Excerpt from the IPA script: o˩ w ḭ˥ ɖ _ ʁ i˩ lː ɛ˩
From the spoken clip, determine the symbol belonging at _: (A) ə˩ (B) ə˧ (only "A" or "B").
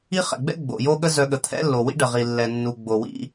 A